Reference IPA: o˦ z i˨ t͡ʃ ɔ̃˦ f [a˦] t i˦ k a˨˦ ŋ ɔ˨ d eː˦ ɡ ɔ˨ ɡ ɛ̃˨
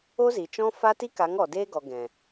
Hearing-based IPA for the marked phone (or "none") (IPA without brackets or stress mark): a˦